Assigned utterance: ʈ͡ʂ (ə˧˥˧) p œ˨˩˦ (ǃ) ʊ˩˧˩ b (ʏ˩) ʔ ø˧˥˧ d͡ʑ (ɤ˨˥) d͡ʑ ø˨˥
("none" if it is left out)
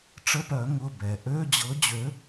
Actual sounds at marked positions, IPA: ə˧˥˧, ŋ, ɛ˩, ɤ˨˥

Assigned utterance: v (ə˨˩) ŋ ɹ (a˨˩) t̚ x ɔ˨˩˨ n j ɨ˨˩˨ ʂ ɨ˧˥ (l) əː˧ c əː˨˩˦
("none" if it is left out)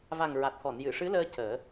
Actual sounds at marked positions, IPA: a˨˩, a˨˩, l

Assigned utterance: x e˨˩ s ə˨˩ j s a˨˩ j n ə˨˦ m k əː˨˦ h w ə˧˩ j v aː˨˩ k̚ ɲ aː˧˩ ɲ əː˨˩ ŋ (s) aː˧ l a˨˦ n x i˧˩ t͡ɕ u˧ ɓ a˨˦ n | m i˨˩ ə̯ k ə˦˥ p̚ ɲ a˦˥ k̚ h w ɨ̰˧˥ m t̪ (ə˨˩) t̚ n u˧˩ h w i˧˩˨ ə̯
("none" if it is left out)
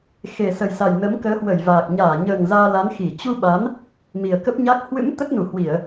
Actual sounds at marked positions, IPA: z, ə˦˥

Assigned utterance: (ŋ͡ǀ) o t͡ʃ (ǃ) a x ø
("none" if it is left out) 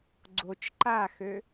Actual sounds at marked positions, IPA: ɡ͡ǀ, ǃ

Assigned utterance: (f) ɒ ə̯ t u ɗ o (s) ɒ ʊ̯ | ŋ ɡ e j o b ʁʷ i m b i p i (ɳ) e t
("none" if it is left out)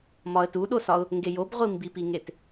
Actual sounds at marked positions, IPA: m, s, ŋ

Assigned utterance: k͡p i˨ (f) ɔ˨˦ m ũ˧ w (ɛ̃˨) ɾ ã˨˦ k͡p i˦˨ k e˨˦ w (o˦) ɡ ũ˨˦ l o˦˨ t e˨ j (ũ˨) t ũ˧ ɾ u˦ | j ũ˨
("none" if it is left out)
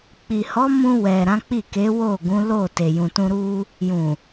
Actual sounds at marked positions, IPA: h, ɛ˨, o˦˨, ũ˨

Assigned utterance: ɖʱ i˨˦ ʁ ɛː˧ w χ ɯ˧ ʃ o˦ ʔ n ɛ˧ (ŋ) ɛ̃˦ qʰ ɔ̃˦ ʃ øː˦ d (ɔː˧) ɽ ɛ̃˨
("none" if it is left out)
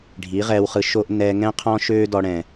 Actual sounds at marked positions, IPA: ŋ, ɔ˧

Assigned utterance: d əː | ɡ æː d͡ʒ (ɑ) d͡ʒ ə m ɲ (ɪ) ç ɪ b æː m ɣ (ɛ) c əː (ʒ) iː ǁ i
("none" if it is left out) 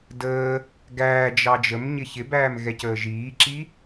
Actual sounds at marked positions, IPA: ɑ, ɪ, ɛ, ʒ

